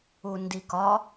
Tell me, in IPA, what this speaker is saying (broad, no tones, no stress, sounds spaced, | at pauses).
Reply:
u n d i k ɒ